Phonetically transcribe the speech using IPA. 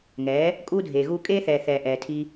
ŋ ɛː˨˦ | kʼ uː˦ dʱ eː˨ ɣ uː˦ kʼ eː˦ θ ɛː˨ θ ɛː˨ ʔ ɛː˨ tʰ i˧

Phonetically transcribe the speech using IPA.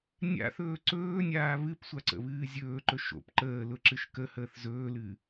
nʲ a̰ θ ɵː ǀ ɵː nʲ aː β ɨ p sʷ a ǀ ə̰ β ɨː zʲ ɵː ǃ ɵ ʃ o̰ p ǃ əː l ʊ ǁ ɨ ʃ k ə h əː θ z ɵː l ɨ

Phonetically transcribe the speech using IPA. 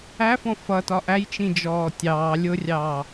æ f ɔ̃ f ʌ t ɒ ʔ æ j t͡ʃ ĩ d͡ʒ ɔː tʲ ɑː lʲ ʊ rʲ ɑː

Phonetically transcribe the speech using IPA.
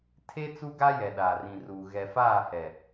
tʰ e˦ t͡s u˦ ɡ a˦ j ɛ˨ ɗ aː˨ r ĩ˨ r uː˨ ɣ ɛ˨ f aː˦˨ h ɛ˨

